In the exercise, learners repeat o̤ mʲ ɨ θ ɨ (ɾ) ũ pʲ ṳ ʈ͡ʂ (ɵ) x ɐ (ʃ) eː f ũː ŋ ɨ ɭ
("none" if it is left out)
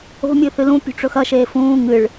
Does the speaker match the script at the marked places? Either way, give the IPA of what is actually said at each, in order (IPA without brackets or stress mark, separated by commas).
l, ɵ, ʃ